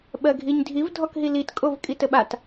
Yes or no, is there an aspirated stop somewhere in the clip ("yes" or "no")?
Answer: no